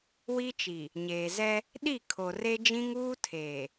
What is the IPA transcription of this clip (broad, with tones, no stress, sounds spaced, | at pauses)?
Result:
w i˦ t͡ʃ i˨ | ɲ eː˨ z ɛ˦ | ɗ i˦˨ kʰ o˨ r e˦ d͡ʒ ĩ˦ ŋ uː˦ tʰ eː˨